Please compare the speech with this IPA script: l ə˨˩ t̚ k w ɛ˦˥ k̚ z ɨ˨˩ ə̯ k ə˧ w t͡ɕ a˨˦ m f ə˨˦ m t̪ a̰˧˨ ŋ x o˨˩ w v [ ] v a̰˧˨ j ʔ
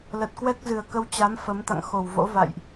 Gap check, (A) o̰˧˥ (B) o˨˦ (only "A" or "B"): A